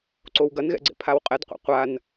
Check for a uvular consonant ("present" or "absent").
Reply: present